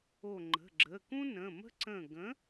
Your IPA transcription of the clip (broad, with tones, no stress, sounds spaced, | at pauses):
o˧˩ ŋ͡ǃ ə̤˩˧˩ ɡ͡ǁ ə˩˧˩ k ũ˥ n ə̃˩˧˩ m ə̤˥ ǀ ə̃˧˩ ɡ ə̃˨˥